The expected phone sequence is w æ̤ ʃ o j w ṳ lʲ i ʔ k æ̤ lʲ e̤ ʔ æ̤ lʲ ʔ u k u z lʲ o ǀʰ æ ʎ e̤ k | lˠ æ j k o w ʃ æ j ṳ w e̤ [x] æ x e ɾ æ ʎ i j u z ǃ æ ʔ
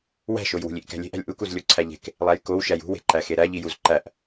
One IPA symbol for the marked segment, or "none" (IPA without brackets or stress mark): ǃ